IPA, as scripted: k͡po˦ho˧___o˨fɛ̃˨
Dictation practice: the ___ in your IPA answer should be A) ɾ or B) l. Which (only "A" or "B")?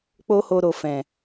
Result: A